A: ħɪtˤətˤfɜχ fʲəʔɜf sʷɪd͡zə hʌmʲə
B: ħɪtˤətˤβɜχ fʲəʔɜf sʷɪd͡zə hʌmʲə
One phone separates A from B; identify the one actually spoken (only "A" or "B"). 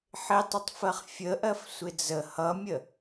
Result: A